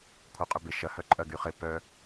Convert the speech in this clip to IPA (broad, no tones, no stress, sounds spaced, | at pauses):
kʷʰ œ qʼ y b ɪ ʃ ɐ h œ ǃʼ ɐ ɡ y χ ɪ p œ